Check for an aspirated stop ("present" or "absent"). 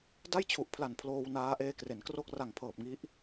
present